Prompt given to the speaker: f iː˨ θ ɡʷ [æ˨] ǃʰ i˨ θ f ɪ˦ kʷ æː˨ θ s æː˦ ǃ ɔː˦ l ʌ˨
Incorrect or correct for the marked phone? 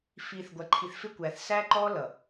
correct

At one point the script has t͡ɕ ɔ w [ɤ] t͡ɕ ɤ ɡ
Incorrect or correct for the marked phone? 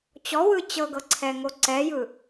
incorrect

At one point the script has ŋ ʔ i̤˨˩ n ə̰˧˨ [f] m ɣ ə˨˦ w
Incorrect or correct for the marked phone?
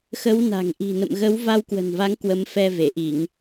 incorrect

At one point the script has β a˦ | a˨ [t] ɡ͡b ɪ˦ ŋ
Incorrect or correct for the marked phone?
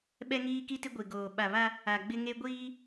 incorrect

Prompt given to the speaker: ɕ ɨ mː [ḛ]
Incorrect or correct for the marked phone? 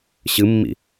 incorrect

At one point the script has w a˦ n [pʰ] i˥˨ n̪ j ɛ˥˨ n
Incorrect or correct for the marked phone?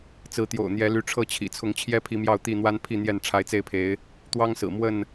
correct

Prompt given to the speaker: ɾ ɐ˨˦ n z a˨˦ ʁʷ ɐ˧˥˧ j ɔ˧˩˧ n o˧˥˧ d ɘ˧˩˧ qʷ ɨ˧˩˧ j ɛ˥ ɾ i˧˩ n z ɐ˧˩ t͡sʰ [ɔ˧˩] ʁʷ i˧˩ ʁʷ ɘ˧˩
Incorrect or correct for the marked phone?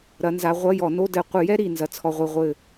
correct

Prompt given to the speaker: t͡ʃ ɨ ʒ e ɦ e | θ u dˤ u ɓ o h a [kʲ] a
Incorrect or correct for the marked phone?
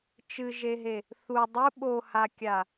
correct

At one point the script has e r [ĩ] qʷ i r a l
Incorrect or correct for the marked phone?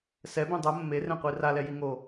incorrect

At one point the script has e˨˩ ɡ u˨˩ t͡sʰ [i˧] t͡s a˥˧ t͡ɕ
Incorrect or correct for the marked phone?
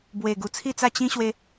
incorrect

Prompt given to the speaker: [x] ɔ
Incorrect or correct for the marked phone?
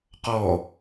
incorrect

